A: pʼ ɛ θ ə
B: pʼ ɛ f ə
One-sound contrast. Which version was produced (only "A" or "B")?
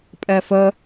B